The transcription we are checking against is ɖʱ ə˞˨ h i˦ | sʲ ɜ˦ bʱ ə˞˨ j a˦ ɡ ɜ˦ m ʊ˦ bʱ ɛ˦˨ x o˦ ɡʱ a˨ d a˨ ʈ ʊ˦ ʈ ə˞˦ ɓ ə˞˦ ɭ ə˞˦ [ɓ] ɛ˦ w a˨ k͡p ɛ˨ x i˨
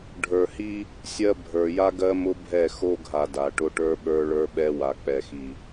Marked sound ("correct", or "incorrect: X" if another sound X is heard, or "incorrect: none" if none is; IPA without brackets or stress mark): correct